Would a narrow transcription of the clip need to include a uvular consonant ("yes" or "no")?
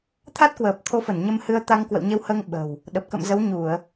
no